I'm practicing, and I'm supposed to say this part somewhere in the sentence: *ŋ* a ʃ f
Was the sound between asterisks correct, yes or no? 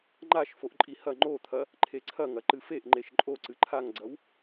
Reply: no